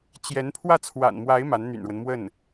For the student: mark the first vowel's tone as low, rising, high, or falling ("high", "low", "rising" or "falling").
rising